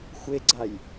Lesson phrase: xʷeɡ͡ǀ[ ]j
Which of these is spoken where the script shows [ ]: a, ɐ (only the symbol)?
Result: a